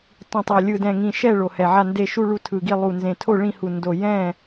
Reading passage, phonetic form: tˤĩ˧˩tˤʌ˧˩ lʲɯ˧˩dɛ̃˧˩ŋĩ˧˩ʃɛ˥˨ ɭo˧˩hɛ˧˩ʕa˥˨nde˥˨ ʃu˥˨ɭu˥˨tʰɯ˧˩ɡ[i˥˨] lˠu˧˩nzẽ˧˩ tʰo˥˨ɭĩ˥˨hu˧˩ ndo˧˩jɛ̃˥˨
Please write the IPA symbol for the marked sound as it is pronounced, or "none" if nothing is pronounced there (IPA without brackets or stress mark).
i˥˨